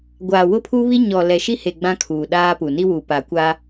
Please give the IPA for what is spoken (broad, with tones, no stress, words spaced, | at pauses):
ɡʷaː˨wʊ˦pʰuː˦βi˦ ɲɔ˨ lɛ˨ʃi˦he˨ ɡ͡bã˦kʰuː˨ɗaː˦pu˨ ni˦wu˨pa˨kʷa˦